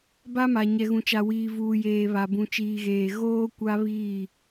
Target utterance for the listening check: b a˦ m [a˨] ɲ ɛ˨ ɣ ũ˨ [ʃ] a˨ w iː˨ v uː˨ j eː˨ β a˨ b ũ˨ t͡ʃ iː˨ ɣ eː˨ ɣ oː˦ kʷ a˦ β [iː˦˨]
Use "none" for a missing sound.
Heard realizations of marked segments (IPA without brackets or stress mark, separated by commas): a˨, t͡ʃ, iː˦˨